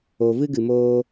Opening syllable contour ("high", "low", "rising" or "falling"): low